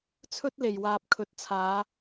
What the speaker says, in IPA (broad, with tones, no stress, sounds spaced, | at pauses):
t͡sʰ ɵ˥ t̚ l e˨˩ j w aː˨ p̚ kʰ ɵ˨ t̚ t͡sʰ aː˨˧